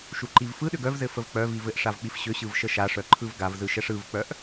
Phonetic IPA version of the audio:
ʃuǃivfɯɗʏɡ œvzɘfəv k͡pœvi vɘʔʂavk͡pif ɕʏɕɯv ʃəʃaʂœǃʰɯv ɡavzɯʃɛʂ ɯvk͡pœʔ

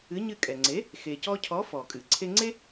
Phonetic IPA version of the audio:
ɨ˩˥ɲɨ˧ kʼɛ˩ŋ͡ǀe˩˥ | xe˩cɔ˧cʰɔ˩˥ fɔ˩kʼɨ˩ ǀʰe˧ŋ͡ǀe˥

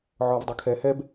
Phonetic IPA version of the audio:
ʕɔvdˤɛkʰɛ hɛb

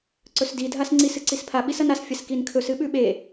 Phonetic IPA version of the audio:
ǀɵsdi dʱasŋ͡ǀis ɨǀispʰa ɓisɐnas fʲɐskinkʰɵs ɨɓʉɓe

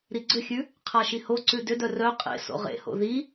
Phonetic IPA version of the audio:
ɾiɡ͡ǀʏxʲʉ | qʰaʃihoǀʉ dʏdœ rœ qʼḛ so̰ʁḛho̰ ði

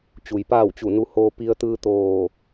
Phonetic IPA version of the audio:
t͡ɕu˩j paː˥˨wt͡ɕu˧˩nu˧hoː˧ pi˧ə̯t̪ɯː˧ t̪oː˧˩

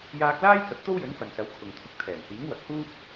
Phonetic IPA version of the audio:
jaː˧k̚laː˥jt͡sɐ˨p̚ t̪o˥wjɵ˨˥nfɐ˨nsɐ˨˥w kʰʊ˨ŋt̪ʰʊ˧k̚ t̪ʰɛː˨˩ŋhiː˨˥ŋwɐ˨k̚ huː˥p̚

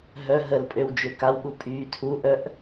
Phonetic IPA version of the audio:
ɦœ ɦəlpʼøw d͡ʒøkawɓu pʼyːtʰuʔœʔ

